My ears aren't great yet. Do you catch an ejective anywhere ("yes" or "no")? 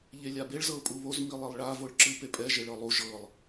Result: yes